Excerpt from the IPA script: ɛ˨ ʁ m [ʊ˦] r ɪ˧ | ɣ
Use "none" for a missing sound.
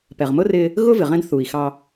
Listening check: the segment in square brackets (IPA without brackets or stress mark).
ʊ˦